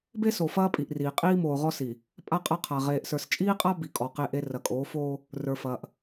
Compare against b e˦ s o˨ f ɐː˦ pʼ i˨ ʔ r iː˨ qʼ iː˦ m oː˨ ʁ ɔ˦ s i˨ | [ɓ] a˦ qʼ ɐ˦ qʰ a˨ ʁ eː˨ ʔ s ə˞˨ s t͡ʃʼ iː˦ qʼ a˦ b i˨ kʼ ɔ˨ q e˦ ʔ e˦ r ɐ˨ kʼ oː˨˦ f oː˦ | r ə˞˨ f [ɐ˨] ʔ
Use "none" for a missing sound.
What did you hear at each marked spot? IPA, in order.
pʼ, ɐː˨

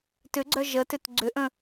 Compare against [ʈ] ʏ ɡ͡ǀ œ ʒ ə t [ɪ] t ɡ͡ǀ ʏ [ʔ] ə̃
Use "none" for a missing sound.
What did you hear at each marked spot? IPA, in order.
t, ʏ, ʔ

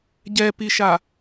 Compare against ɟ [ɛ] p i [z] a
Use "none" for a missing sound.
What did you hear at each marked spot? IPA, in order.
ɛ, ʃ

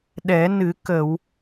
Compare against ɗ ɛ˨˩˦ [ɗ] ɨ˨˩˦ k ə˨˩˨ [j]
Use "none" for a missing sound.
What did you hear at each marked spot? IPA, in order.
n, w

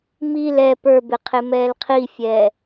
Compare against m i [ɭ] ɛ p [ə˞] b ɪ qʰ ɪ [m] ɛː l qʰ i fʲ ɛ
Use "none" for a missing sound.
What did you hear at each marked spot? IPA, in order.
l, ə˞, m

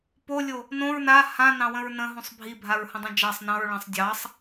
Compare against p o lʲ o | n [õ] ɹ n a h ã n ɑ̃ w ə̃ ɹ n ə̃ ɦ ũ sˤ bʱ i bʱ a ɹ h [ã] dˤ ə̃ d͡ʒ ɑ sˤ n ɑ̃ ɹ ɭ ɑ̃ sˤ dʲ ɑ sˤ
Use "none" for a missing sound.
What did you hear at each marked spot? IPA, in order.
õ, ə̃

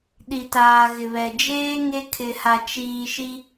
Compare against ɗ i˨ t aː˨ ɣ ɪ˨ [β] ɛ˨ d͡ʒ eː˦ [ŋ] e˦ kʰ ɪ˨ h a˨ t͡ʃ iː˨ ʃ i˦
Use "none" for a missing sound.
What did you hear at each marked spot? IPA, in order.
β, ŋ

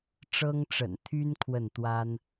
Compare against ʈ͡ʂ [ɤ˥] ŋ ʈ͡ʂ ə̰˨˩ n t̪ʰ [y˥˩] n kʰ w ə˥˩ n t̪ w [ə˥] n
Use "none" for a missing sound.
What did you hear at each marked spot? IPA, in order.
ɤ˥, y˥, a˥

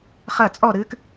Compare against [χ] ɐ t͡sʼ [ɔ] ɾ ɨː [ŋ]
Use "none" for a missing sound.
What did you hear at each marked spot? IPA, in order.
χ, ɔ, k

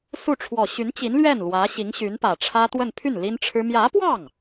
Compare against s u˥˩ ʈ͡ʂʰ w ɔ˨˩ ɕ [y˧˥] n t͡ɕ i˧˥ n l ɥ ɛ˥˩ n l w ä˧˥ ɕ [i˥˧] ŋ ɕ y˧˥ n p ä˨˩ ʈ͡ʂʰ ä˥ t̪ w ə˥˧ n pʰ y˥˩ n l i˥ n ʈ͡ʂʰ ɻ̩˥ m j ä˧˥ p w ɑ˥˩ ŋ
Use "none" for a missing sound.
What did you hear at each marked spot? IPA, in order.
y˧˥, i˧˥

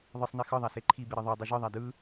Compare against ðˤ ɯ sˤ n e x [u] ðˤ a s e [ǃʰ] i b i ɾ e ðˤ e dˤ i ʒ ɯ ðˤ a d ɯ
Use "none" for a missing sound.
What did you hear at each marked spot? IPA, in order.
ɯ, ǃʰ

